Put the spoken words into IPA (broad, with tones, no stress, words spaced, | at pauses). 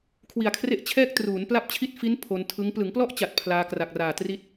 kʰwi˨˩a̯kʰre˦˥ʔ t͡ɕʰɛː˥˩k̚ truː˩˦n pla˥˩p̚t͡ɕʰi˥˩t̚ fi˦˥n pʰo˧n tʰɯ˦˥ŋ plɯ˩˦ŋplɔ˦˥ʔ t͡ɕa˨˩t̚pʰlaː˧kra˨˩k̚raː˨˩ tri˦˥t̚